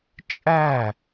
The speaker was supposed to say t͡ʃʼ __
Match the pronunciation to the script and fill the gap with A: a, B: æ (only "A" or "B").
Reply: B